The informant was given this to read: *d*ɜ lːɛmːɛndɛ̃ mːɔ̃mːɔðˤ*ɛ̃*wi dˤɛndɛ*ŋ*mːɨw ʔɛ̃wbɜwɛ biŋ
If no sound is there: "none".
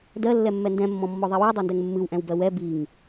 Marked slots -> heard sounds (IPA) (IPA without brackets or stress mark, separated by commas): d, ɛ, ŋ